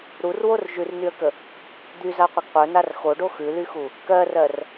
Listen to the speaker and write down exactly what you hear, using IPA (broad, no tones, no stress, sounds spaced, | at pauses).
ɾ u r w o r ʒ ʉ r n y ə̯ k ə | d̪ y z a qʷ ə ɡ qʷ œ n a r x o ɖ o x ʉ l y x u | k ɜ r ɜ r